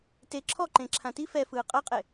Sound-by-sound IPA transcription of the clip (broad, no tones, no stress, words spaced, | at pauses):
te ǁʰɔǃẽ ǁʰãti fɛfɯː qʼɤqʼe